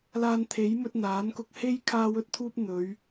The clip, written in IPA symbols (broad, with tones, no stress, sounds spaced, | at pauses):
l aː˧ n t̪ʰ e˨˥ j m ɵ˧ t̚ n̪ aː˨˥ n k ʊ˧ k̚ h e˥ j kʰ aː˧ w ɵ˧ t̚ t̪ʰ uː˧ p̚ n̪ ɵ˨˧ ɥ